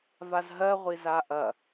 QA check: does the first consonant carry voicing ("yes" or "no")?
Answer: yes